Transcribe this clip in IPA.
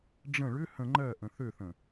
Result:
ɖ͡ʐ ə̃ ɭ ʏ h ə̃ ŋ͡ǃ ɜ ʔ ə̃ θ ø θ ə̃

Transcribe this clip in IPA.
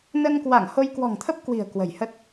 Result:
n ə˧ n k w a˧˩ ŋ h o˧ j k w ɔ̤˨˩ ŋ t̪ʰ ə˦˥ p̚ k w i̤˨˩ ə̯ k w ə̤˨˩ j h ə˦˥ t̚

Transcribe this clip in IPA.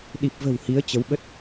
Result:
ɗ i˨˩ p̚ v ə̤˨˩ w h i˨˦ ə̯ t͡ɕ ə˨˦ w ɓ ə˦˥ t̚

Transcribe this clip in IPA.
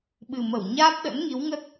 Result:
ɓ ɨ˨˩ m ə˧˩ w ɲ aː˦˥ p̚ ɗ ə̰˧˥ n ŋ i˨˦ w ŋ ə˦˥ t̚

